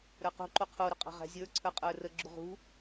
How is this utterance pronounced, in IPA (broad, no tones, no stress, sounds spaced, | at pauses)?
ɾ ə˞ q ṳ ǃ u qʰ u ɾ ʊ qʼ ɑ̤ ʁ æ̤ zʲ ə˞ ǀʰ ə˞ qʼ ə˞ r ə ɡ͡ǁ u ʁ ṳ